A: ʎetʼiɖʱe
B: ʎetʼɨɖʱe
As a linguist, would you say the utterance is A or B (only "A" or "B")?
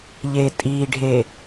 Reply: A